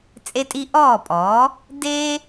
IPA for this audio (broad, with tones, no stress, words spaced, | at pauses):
t͡sʼe˦tʼi˦ʔɔː˥˩pʼɔ˩˥ | de˦